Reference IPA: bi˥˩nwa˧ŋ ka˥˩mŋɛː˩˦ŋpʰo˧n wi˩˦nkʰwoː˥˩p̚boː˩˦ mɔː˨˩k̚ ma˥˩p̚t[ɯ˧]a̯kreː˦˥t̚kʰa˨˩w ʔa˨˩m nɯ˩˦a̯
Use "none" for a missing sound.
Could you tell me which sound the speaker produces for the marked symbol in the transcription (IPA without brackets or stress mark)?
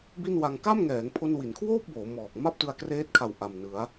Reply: ɯ˧